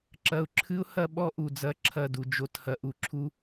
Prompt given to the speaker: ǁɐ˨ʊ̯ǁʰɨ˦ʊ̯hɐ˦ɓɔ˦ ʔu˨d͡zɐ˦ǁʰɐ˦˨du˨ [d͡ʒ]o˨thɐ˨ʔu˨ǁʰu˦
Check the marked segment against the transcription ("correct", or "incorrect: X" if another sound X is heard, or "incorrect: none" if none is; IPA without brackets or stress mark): correct